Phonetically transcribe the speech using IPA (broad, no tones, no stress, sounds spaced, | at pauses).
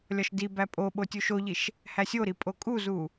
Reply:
lʲ ɒ ʃ d i b æ pʼ o ɓ o tʲ u ʃ o ʎ i ʃ | h æ sʲ o ɾ i pʼ o kʼ u z u